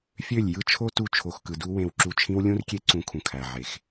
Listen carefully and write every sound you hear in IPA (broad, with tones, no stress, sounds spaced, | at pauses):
fʲ ø˦˨ lʲ j ɯ˦ t͡ʃʰ o˦ t u˧ t͡ʃʰ o˨ x k ɯ˨ d u˦ w ẽ˧ w ǁ u˧ t͡ʃʰ ĩ˦ w lʲ ũ˦ r kʲ e˦ ǀ ũ˧ kʰ ũ˨ kʰ æ˨ ʕ e˨ x